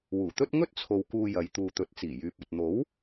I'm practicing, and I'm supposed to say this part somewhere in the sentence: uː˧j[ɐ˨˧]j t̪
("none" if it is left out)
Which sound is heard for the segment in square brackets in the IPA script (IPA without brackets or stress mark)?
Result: ɐ˨˧